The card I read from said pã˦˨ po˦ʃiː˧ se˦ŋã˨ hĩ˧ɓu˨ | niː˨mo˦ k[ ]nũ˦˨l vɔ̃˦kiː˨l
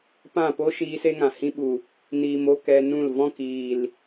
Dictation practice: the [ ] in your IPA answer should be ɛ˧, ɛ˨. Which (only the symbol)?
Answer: ɛ˧